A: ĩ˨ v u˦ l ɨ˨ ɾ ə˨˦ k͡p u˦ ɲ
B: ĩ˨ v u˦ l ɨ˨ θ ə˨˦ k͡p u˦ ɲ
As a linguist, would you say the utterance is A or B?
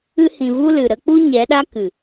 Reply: A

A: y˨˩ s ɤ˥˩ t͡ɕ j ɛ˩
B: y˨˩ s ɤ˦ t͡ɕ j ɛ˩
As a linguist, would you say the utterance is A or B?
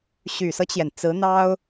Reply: B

